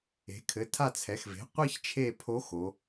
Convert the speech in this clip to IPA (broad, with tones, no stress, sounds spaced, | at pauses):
e̤˩˧ kʰ ɘ˩˧ tʰ a˦˨ t͡sʰ ɛ˩˧ x v e̤˩˥ qʷ i˥ ç t͡ʃʰ e˦˨ pʰ o˧˥ x o˩˧